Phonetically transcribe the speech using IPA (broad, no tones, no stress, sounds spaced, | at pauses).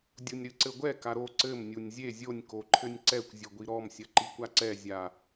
dʲ u nʲ ɾ ɨ ǀ ɘ ɡʷ ɛ k a ɾ o ǀ ɘ m nʲ u nʲ zʲ e zʲ o nʲ k o ǃʰ ɘ nʲ ǀ ɛ kʷ zʲ ɘ ɡʷ i ɾ ɔ m sʲ ɐ ǃ i kʷ a ǀ ɛ zʲ a